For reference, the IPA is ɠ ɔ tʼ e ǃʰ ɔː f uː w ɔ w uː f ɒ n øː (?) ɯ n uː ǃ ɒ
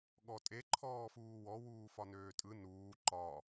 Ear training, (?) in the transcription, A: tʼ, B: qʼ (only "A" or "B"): A